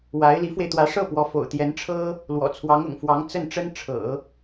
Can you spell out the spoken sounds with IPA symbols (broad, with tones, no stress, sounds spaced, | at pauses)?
w a˧˥ ɪ̯ l i˧˥ f w e˧ ɪ̯ t̪ w ä˧˥ ʂ ɤ˥˩ p w ɔ˧˥ f o̰˨˩ ʊ̯ t̪ j ɛ˧˥ n ʈ͡ʂʰ ɤ˥ | l w ɔ̰˨˩ t͡sʰ w ɑ˧˥ ŋ ʊ̰˨˩ ŋ f w ɑ˧˥ ŋ t͡s ə˥˩ n ʈ͡ʂ ə˥ n ʈ͡ʂʰ ɤ̰˨˩˦